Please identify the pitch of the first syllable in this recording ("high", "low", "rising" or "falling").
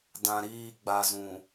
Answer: low